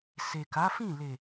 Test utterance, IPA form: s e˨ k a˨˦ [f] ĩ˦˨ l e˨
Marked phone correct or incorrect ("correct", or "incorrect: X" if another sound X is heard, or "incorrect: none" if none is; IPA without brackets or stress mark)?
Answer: correct